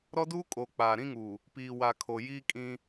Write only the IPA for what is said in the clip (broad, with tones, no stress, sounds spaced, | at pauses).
ɾ ɔ˦ d uː˦ kʼ oː˨ k͡p aː˨ ɾ ĩ˦ ŋ uː˨ | p iː˨ w a˨ kʰ o˨ j iː˦ kʼ ĩ˦